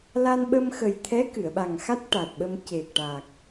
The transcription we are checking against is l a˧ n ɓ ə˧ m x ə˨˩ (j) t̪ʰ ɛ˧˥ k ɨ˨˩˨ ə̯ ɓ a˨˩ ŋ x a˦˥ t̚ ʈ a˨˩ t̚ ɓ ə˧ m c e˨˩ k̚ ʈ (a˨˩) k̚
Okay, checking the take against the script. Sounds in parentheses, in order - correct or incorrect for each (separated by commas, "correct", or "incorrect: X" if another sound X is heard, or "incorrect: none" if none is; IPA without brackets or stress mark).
correct, correct